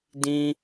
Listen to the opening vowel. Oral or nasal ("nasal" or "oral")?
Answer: nasal